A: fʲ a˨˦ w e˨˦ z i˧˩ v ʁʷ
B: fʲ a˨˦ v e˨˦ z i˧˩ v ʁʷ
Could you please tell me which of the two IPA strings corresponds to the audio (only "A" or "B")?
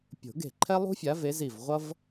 B